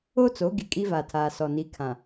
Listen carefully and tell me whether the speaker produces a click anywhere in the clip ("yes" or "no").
no